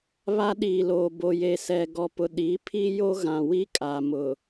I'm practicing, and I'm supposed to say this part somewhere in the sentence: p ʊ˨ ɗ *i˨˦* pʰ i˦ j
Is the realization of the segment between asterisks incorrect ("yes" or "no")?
no